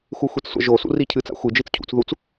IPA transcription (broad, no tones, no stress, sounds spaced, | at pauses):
x u xʷ e t͡s sʷ a̰ ʒ o s ṵ r i cʰ ɨ t͡s a̰ xʷ ɨ d͡ʒ i t͡s cʰ ṵ t͡s ð u t͡s